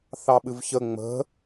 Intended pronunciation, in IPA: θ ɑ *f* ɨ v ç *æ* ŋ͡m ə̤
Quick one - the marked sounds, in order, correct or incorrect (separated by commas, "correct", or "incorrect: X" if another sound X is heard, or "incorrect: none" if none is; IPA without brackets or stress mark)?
incorrect: ɓ, incorrect: ə